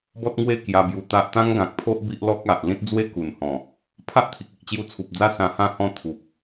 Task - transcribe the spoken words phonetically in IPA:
b ɔ˦ t̚ ŋ w e˥˧ k j a˧ b j u˧ t̪ a˦ ʔ t̪ ã˦ ŋ ɡ ã˨ k̚ pʰ o˦ ʔ b i˦ ʔ l ɔ˦ k̚ a˨ ʔ l ĩ˦ t̚ d͡z w e˦ k u˨˩ n h ɔ̃˨˩ | pʰ a˦ ʔ t̪ʰ i˨ k̚ i˨ ʔ t͡ɕ j u˧ t͡sʰ u˨ p̚ d͡z a˦ s ã˧ h ã˥˧ h ɔ̃˥˧ t̪ʰ u˨ p̚

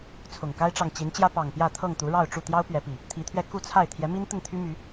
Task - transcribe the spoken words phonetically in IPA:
t͡sʰ ʊ˨˩ ŋ k a˦ ɪ̯ ʈ͡ʂ ɑ˨ ŋ t͡ɕ i˨˦ n t͡ɕ j ä˦ p ɑ˨˩ ŋ p j ä˥˨ t̪ʰ ɤ˥˨ ŋ t̪ u˨˦ ɻ ɑ˥˨ ʊ̯ ʈ͡ʂ u˥˨ t̪ j ɑ˦ ʊ̯ p ɥ ɛ˨˦ p i˨˩ | t̪ʰ i˨˦ t̪ʰ ɥ ɛ˧ k u˥˨ t͡sʰ a˥˨ ɪ̯ t̪ʰ j ɛ˨˦ m i˦ n t̪ ə˥˨ n t̪ʰ y˦ m y˨˦

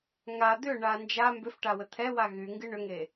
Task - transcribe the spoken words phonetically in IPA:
ŋ a d̪ ʏ ɳ a n d͡ʒ a m b ʏ f ʈ a w ə t̪ʰ ɛ w a ɣ y ŋ ɡ ɨ ɳ ʏ ŋ e

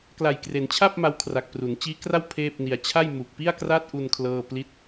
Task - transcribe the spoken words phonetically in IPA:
k l a˨˩ j k r e˩˦ n t͡ɕʰ a˥˩ p̚ m a˦˥ w kʰ r a˨˩ k̚ p r u˩˦ n t͡ɕ iː˦˥ k r a˥˩ w pʰ eː˥˩ p̚ n i˧ a̯ t͡ɕʰ a˥˩ j m u˨˩ k̚ p i˥˩ a̯ k r a˥˩ t̚ ʔ u˧ n kʰ l ɤː˥˩ p l i˦˥ t̚

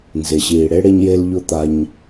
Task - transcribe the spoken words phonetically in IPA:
n z e˨ ɕ iː˨ ɽ e˦ ɽ e˧ ɲ j e˧ l ʎ ʊ˦ t̪ a˧ ɲ

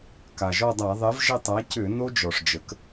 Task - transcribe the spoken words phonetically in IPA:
k a˩ ʒ ɔ˦˨ dˤ a˧˩˧ ðˤ ɛ˩˥ v ʒ ə˦˨ tˤ a˩˥ c ʏ˧˩˧ n o˦˥ d͡ʒ ɔ˩ ʂ d͡ʒ ə˩˥ k

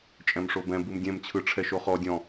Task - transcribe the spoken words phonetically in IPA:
t͡ʃʼ ɛ̃ m ʂ o b ɛ̃ b ɯ m dʲ ɛ̃ m t͡ɕʰ ɯ ʈ͡ʂʰ ɛ ʃ o χ ɔ dʲ ɔ̃

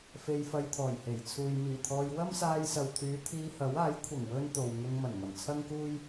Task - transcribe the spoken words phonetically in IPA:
f e˧ j f ɐ˧ j t̪ʰ ɔː˨˩ j h e˨˩ j t͡sʰ uː˨ j m iː˨˩ t̪ʰ ɔː˧ j w ɐ˥ m s aː˧ j s ɐ˨ w t̪ʰ yː˨˧ t̪ʰ iː˧ h ɐ˨˥ w aː˨˥ j kʷʰ ɐ˨˩ ŋ w ɵ˥ n t̪ o˨ w ŋ ʊ˧ ŋ m ɐ˨˩ n ŋ ɐ˨˩ m t͡sʰ ɐ˥ ŋ k uː˥ j

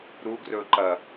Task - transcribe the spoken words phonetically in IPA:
ɾ u ɡ r ɵ ǃ ɐ

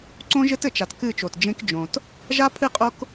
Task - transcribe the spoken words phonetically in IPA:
ǀ õ˦ ʒ ɘ˦ t ɘ˨ t͡ʃ a˨ t k ɨ˦˨ t͡ʃ o˨ t d͡ʒ ẽ˦ k d͡ʒ õ˨ t | ʒ a˦ pʰ ɨ˦˨ qʼ o˦ k

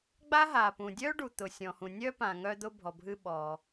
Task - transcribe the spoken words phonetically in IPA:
ɡ͡b a˥ ɦ a˩ p ũ˩ dʲ œ˥ ɖ u˩ t̪ ʊ˩ sʲ ɔ̃˩ h ũ˩ nʲ œ˥ p ã˩ ŋ œ˥ d̪ ʊ˥ bʱ ɔ˩ bʱ ɨ˥ ɓ ɔ˩

